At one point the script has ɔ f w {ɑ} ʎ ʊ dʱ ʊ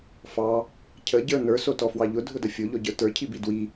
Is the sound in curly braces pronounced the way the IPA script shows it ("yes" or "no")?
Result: yes